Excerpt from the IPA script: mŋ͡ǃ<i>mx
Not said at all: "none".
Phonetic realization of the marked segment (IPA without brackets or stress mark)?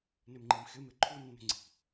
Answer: i